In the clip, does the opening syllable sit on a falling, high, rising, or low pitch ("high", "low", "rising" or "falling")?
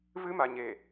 high